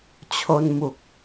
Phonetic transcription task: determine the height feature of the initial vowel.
mid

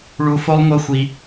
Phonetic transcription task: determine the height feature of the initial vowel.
high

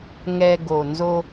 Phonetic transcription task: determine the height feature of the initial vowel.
mid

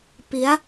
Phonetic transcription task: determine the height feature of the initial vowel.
high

